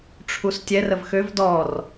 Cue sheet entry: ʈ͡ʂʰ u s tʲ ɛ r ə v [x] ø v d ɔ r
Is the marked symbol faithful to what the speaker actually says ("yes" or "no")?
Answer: yes